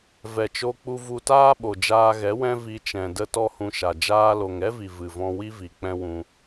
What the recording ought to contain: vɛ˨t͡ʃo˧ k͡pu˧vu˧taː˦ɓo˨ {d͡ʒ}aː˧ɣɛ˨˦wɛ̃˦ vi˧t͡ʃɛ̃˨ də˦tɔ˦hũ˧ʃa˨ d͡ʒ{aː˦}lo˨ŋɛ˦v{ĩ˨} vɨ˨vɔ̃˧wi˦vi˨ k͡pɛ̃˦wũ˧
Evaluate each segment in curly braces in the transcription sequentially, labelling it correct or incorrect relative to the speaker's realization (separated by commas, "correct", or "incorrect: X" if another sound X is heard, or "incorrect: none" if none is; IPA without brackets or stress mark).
correct, incorrect: aː˧, incorrect: i˨